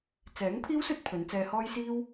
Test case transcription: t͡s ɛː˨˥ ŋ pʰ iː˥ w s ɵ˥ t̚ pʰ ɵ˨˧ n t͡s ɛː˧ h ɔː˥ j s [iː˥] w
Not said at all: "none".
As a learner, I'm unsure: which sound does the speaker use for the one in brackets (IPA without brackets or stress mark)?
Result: iː˥